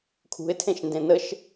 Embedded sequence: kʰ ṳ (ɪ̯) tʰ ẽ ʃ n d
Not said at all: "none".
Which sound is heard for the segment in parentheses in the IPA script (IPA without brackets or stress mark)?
ɪ̯